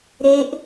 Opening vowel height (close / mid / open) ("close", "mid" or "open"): mid